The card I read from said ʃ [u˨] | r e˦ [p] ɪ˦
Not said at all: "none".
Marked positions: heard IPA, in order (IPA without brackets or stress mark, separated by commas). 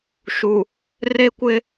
u˨, kʷ